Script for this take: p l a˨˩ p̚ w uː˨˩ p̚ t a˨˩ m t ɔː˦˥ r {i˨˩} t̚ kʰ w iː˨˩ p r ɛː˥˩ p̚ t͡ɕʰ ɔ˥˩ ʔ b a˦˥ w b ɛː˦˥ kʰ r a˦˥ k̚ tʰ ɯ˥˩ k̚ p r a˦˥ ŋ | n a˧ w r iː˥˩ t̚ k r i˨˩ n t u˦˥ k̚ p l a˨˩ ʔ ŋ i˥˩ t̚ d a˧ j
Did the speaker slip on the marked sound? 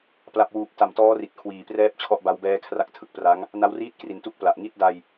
no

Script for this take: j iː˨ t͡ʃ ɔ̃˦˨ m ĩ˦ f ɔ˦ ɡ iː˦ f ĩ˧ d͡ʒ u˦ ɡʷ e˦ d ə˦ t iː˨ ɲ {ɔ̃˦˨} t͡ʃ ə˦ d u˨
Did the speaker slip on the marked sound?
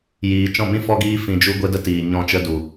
no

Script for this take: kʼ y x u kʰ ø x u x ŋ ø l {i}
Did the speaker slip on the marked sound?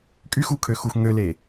yes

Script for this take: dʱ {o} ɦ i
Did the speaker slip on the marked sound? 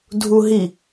yes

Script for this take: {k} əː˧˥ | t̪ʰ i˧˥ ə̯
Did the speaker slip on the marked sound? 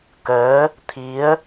no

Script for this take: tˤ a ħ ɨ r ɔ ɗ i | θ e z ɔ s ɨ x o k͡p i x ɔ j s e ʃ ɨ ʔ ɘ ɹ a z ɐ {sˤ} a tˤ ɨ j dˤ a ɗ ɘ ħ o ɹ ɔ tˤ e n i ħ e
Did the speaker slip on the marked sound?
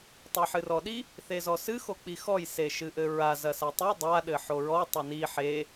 yes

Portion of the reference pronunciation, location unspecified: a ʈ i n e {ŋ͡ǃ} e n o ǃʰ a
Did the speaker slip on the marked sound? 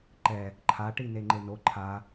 no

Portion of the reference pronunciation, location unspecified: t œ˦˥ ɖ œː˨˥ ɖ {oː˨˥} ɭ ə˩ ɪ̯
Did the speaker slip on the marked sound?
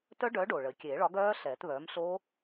yes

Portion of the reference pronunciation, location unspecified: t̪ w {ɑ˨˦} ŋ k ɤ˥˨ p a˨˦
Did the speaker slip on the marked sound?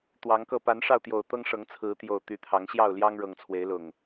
no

